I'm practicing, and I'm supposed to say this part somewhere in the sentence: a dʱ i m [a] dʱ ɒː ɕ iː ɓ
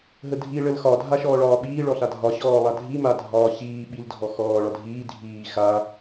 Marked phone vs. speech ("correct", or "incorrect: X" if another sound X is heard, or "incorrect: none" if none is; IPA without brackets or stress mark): correct